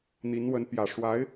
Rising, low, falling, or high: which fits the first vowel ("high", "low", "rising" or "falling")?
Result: rising